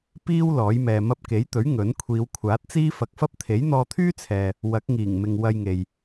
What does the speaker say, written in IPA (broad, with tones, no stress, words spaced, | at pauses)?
piː˥w lɔː˨˥jmɛː˨ mɐ˧p̚ke˨˥jt̪ɵ˨˥ɥ ŋɵ˨˥n kʷʰiː˨˧wkʷʰaː˨˥t̚t͡siː˥ fɐ˨k̚fɐ˥p̚ t̪ʰe˨˥jn̪ɔː˧t̪ʰyː˥t͡sʰɛː˨ | wɐ˨˥k̚ŋiː˨˩ŋ mɪ˨ŋ wɐ˧jŋe˨j